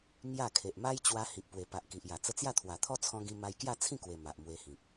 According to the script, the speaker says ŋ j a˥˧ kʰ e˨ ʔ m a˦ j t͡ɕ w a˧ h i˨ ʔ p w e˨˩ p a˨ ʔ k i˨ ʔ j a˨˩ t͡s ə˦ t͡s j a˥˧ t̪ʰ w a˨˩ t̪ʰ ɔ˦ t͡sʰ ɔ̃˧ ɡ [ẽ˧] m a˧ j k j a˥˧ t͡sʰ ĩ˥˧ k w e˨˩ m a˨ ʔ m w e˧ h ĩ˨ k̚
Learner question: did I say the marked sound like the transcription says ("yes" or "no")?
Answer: no